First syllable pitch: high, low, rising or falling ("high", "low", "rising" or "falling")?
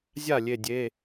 falling